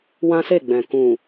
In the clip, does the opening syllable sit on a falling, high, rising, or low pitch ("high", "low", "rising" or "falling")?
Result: high